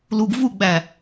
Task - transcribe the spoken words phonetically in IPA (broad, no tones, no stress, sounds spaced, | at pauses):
l u ɡ v u ɡ͡b æ